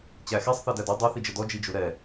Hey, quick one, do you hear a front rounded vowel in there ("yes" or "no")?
no